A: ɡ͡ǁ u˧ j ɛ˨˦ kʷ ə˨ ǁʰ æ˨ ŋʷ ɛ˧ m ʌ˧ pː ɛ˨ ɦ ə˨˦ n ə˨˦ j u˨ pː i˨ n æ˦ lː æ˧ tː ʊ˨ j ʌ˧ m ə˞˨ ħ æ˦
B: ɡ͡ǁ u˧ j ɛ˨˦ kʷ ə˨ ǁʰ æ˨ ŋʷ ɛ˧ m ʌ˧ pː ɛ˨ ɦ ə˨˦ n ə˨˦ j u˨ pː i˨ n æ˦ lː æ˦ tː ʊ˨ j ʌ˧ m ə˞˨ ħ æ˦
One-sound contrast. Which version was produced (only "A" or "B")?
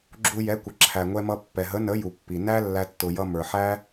A